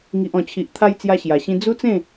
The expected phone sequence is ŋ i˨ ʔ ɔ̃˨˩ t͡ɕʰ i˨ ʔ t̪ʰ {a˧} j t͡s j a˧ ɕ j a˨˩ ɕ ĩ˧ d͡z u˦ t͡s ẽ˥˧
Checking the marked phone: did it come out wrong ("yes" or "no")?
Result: no